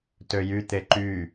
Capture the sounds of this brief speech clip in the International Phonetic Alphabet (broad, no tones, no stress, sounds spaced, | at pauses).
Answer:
t ø j y t̪ e ǃ y